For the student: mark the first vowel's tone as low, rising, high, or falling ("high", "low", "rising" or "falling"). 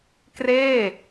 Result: falling